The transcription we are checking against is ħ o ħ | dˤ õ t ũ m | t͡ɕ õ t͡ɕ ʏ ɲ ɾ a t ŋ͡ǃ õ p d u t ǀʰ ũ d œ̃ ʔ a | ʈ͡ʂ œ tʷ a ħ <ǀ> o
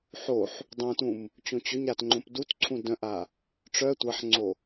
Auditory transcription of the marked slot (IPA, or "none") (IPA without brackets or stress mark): ŋ͡ǀ